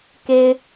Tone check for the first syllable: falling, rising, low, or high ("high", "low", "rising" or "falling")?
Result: high